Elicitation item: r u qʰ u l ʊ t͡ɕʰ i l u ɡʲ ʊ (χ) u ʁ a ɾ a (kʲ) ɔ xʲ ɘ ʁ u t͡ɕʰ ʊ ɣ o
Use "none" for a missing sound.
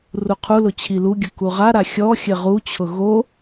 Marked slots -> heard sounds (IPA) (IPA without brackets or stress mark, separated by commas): k, xʲ